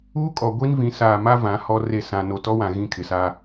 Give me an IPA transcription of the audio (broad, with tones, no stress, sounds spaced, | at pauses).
uː˦ kʼ ɔ˨ ɡʷ i˦ n v ĩ˨˦ s aː˨ m a˦ v ã˨˦ h ɔ˦ r e˦˨ s ã˨ n o˨ t ɔ˦ w ã˨ ɣ ĩ˦ kʰ ɪ˨ s a˦